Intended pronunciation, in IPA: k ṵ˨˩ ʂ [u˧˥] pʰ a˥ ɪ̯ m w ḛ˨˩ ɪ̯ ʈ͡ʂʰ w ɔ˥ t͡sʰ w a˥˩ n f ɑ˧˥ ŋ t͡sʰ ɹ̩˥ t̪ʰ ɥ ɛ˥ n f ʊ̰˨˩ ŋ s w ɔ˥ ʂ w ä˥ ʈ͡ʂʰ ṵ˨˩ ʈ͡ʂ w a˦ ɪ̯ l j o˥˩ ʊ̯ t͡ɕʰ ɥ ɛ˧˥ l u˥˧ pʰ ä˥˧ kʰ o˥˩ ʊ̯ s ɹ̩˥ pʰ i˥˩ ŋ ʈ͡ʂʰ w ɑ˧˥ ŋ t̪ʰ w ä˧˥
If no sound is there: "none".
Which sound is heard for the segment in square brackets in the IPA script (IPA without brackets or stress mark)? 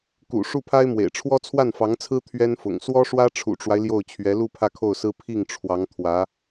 u˥˩